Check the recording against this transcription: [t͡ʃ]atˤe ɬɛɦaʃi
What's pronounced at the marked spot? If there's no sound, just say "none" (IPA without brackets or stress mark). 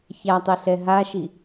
ç